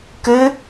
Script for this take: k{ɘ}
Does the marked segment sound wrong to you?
no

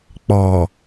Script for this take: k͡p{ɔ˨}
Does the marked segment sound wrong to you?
no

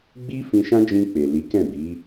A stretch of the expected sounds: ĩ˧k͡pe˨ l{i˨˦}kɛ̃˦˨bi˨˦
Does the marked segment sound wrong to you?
no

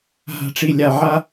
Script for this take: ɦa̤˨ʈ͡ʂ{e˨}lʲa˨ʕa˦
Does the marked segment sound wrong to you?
yes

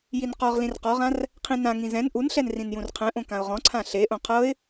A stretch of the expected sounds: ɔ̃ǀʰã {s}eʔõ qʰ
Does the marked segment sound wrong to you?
yes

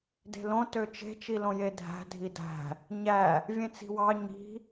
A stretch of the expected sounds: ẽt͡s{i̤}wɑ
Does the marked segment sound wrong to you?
no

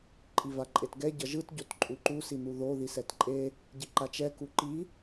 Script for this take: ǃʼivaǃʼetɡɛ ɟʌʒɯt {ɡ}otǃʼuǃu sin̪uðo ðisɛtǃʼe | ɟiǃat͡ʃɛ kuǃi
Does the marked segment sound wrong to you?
yes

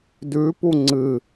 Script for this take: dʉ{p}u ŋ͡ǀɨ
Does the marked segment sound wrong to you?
no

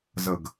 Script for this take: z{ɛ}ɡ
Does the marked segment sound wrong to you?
yes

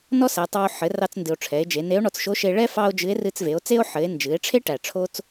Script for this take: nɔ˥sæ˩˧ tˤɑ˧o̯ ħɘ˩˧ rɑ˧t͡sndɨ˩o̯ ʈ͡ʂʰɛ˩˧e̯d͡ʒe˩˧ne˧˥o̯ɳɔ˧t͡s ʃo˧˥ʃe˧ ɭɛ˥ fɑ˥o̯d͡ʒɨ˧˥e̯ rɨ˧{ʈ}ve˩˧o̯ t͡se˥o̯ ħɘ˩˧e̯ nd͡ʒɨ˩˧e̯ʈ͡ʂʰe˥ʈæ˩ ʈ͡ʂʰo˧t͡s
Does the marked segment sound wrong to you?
yes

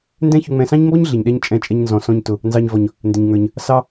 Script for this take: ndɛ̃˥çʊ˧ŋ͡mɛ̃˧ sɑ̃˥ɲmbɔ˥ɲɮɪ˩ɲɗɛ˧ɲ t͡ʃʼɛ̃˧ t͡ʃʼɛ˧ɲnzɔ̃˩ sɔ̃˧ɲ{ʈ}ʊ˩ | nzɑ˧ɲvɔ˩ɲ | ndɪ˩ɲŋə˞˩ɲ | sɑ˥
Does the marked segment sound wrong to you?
yes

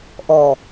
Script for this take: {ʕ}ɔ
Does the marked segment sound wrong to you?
yes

